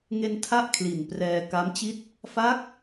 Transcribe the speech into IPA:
ŋ e˧ n tʰ a˦˥ ʔ kʰ l i˨˩ n p r ɛː˧ k a˦˥ m t͡ɕ i˥˩ t̚ | f a˦˥ k̚

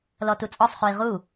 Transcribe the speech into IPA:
l ɔ t u t͡sʼ ɔ sˤ χ u i̯ ʁ u

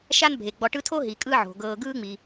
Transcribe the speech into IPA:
ʃ a˦ n bʱ e˩ ɡ͡b ɔ˨ ʈ ɯ˦ tʰ o˥ ɦ i˩ kʼ ɯ˦ ʕ o̤˩ ɡ ɤː˨ ɡ ɯː˥ ŋ͡m i˩

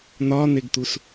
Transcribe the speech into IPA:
n̪ ɒ n̪ e ɡ t̪ u s

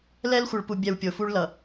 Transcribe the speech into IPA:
l ɛ˦ l xʷ ʌ˨ ɭ p u˨ bʲ ɛ˨ w pʲ o˨ f u˦ ɭ l ʌ˨

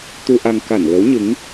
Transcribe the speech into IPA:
t̪ u˧ ʔ a˧ ŋ k a˧˩ n l ə˨˦ w ɲ ɨ˨˦ ŋ

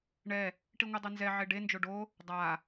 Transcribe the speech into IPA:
ɳ ɛ | ʈ i ŋʷ ɛ dˤ ɛ n z ɛ ʕ e ɖ e n d͡ʒ o ɖ o | dˤ a

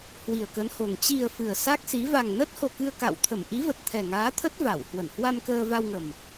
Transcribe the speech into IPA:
h w i˨˩ ə̯ k ə˨˦ n h o˨˩ ŋ t͡ɕ i˨˩ ə̯ f ɨ˨˩ ə̯ s a˦˥ k̚ s i˨˦ v a˨˩ ŋ n ə˦˥ t̚ h o˨˩ k ɨ˧ ə̯ k a̰˧˨ w t̪ʰ ə˧˩ m ʔ i˨˦ v ə˨˩ t̚ t̪ʰ ɛ˨˩ ŋ aː˨˦ t̪ʰ ə˦˥ t̚ v a˧˩ w h w ə˧˩ n h w a˧ m k əː˧ v a˧ w ŋ ə˨˩ m

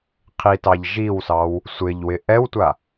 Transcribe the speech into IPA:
qʰ i t ɑ ʎ ʒ i w s ɑ w | sʷ ɪ ʎ w ɪ ʔ ɛ w tʷ a

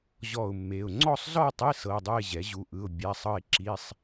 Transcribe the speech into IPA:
ʑ ɔ˥˧ ʊ̯ mː e˧˥˧ ʊ̯ ŋ͡ǀ ɔ˥˧ sˤ z ɔ˥˧ tˤ e˧˥˧ s ɤ˧˥˧ dˤ ɯ˥˧ ɪ̯ ʑ ɛ˩˥ ʑ u˧˥˧ ʔ ɯ˧˥˧ ʊ̯ bʲ a˧˥˧ sˤ ɤ˥˧ ɪ̯ ǁ i˧˥˧ sˤ

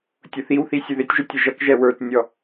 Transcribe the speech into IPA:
tʲ ʊ θ i w θ i sʲ ə ð ɪ tʲ ʒ ʊ tʲ ə ʒ ʌ k ʒ ɛ w ə˞ t nʲ ɔ

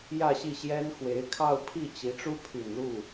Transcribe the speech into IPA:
j ä˥˧ ɕ i˥˩ ɕ j ɛ˥ n x w e˧˥ ɪ̯ kʰ ɑ˥˧ ʊ̯ pʰ i˥˩ t͡ɕ i˧˥ ʈ͡ʂ u˥ pʰ y˨˩ n l u˥˩

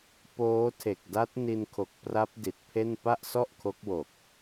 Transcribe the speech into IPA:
p oː˦˥ tʰ e˨˩ k̚ d a˦˥ t̚ n i˧ n kʰ o˨˩ k̚ p r a˦˥ p̚ d i˨˩ t̚ pʰ e˥˩ n p a˥˩ ʔ s ɔ˥˩ ʔ kʰ o˦˥ k̚ w o˨˩ k̚

